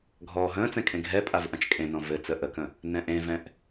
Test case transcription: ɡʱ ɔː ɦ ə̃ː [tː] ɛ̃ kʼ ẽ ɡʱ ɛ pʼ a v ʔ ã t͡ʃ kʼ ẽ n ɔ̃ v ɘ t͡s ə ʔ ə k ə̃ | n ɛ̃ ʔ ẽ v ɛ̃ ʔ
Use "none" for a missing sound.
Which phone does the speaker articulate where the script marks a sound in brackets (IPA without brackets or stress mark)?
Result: t͡s